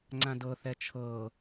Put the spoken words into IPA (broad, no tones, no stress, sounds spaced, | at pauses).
ŋ͡ǀ ã d ɤ θ ɛ t͡ʃʰ ɤ